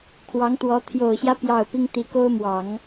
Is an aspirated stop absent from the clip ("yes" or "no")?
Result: no